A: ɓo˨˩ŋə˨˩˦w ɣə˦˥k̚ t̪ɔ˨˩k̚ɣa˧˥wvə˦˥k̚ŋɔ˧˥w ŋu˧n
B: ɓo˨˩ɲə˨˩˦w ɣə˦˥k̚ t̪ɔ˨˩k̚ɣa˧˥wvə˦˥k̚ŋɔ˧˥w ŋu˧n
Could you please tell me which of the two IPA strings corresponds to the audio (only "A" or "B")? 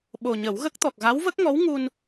B